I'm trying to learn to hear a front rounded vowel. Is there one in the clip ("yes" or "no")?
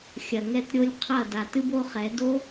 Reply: no